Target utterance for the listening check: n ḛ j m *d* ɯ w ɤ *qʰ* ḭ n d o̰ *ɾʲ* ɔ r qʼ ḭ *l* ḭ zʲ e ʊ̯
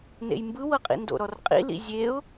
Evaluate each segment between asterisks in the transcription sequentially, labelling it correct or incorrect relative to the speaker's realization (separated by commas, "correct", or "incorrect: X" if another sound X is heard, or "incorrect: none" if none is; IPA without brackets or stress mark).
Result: incorrect: b, incorrect: qʼ, incorrect: ɾ, correct